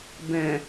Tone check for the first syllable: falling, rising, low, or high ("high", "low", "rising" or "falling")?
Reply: low